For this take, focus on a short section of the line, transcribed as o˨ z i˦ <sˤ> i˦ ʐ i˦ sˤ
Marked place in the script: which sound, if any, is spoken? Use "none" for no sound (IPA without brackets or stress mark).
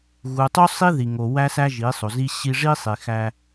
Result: ɕ